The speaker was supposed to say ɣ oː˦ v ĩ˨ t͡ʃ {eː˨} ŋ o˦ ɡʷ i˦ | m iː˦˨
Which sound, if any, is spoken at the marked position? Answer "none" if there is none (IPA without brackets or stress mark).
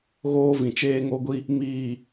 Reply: eː˦